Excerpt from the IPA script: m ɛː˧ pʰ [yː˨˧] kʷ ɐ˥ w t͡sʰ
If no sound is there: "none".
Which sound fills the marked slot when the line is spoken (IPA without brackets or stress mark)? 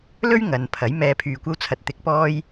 yː˧